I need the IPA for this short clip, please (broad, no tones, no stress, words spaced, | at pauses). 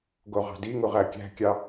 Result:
ɡoʁɑ̤diŋu ʁækʲæ̤kʲɑ